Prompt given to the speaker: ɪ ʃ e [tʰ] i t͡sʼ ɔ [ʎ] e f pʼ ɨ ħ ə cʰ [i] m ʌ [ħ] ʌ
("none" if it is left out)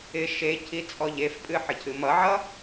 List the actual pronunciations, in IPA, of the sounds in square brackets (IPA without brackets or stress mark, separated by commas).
cʰ, ʎ, ɨ, ʕ